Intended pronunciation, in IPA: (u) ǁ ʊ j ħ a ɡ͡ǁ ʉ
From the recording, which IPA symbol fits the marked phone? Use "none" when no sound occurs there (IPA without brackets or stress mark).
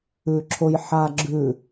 ʉ